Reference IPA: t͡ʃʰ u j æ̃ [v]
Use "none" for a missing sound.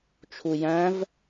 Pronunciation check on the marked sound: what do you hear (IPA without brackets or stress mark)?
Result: v